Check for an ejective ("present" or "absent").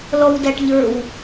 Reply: absent